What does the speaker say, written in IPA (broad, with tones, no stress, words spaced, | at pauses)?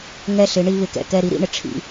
ŋɛ˦˨ɬɪ˨˦ ɳi˦ βɪ˨kɛ̰˨ kɛ˦˨ ɾi˦ɾḭ˦ɳɪ˨ ʈ͡ʂʰḭ˦